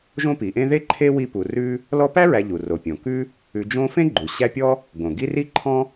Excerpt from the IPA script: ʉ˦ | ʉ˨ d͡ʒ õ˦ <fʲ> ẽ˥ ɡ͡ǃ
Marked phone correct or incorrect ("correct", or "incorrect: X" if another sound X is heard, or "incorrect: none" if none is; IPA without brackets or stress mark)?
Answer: incorrect: f